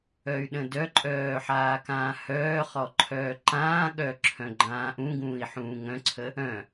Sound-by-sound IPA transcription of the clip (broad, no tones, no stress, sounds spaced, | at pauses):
œ y̯ ɗ ə̃ d œ ǃʼ œː ħ aː k ãː h œː χ ɔ ǃʰ œː ǃ ãː ɠ œ ǁʰ œ̃ ɡ͡ǃ ãː ʔ ũ ɡ ũː i̯ ħ ũː ŋ œ̃ ǀʰ ə | œ̃